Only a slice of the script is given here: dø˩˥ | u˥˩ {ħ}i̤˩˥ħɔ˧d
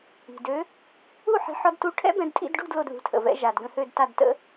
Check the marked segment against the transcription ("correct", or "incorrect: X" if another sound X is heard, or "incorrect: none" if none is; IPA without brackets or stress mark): correct